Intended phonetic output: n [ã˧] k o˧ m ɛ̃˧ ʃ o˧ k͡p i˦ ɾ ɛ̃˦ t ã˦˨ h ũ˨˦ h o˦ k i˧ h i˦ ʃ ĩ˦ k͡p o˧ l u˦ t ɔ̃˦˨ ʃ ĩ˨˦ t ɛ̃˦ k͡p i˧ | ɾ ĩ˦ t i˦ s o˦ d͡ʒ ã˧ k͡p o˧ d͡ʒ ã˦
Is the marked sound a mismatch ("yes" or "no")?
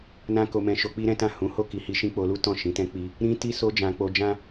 yes